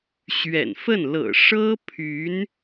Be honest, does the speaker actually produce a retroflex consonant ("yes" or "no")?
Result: yes